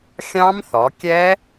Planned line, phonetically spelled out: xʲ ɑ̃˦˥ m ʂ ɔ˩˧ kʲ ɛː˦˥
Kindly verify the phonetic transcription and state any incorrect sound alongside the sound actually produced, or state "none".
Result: ʂ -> θ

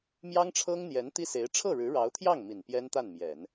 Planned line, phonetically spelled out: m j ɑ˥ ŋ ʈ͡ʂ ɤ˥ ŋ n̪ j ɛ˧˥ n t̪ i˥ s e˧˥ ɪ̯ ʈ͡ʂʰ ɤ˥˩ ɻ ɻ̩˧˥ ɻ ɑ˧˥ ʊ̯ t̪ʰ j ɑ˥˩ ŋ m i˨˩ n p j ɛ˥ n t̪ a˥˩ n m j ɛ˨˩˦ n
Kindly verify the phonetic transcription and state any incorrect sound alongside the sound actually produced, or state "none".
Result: ʈ͡ʂ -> ʈ͡ʂʰ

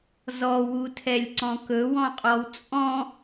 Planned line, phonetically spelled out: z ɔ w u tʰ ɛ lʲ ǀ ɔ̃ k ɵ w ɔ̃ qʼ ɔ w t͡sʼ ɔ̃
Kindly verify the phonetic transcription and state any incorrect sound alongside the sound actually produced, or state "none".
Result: none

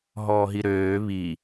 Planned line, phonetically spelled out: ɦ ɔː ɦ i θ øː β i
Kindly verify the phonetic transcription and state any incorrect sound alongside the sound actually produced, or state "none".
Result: θ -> ɾ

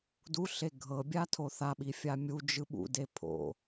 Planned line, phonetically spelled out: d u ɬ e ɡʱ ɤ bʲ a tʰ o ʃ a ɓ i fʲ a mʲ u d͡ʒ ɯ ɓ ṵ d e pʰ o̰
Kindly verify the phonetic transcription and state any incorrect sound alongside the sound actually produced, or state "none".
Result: ʃ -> θ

